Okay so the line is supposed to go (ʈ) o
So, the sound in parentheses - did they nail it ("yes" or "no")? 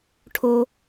no